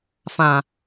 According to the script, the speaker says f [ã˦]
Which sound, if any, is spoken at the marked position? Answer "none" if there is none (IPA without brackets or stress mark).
ã˨